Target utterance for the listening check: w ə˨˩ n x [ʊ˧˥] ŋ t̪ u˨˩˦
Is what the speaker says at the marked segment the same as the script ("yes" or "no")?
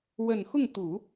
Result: no